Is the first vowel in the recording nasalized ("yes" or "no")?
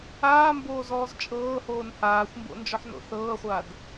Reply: no